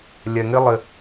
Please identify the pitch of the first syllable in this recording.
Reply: low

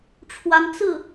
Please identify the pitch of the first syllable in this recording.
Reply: rising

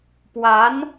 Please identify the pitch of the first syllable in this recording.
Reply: rising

